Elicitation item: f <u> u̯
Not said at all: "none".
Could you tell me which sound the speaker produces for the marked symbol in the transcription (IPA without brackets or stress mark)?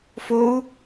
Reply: o